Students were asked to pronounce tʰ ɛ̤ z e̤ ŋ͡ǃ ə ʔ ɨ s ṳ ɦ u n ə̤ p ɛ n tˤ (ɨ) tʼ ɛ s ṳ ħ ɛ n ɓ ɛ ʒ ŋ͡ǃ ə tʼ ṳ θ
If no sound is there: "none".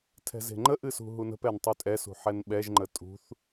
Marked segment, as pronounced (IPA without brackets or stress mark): y